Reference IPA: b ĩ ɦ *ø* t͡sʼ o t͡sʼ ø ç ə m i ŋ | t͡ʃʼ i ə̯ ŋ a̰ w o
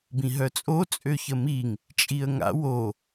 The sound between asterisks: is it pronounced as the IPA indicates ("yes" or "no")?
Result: no